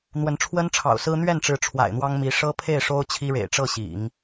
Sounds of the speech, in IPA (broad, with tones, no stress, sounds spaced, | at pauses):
n̪ w ə˧˥ n ʈ͡ʂʰ w ə˥ n ʈ͡ʂʰ ɑ̰˨˩ ʊ̯ s ɹ̩˥ n̪ ɥ ɛ˥˩ n ʈ͡ʂ ɻ̩˧˥ ʈ͡ʂʰ w a̰˨˩ ɪ̯ n̪ w ɑ˥ ŋ m i˧˥ ʂ ɤ˥ pʰ e˥˩ ɪ̯ ʂ o˥ ʊ̯ t͡ɕʰ i˥ ɻ ḛ˨˩ ɪ̯ ʈ͡ʂ ɤ˥˩ ɕ ḭ˨˩˦ ŋ